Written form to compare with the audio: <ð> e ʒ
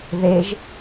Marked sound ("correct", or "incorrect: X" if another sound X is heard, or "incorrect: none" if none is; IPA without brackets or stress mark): correct